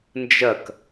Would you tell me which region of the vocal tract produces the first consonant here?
tongue tip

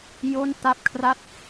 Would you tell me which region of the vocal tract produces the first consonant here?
palate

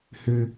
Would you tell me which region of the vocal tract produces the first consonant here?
throat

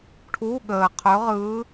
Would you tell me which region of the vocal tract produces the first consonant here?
retroflex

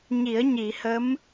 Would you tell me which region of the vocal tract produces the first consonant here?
palate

